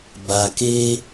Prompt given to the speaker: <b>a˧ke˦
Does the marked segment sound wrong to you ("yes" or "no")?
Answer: no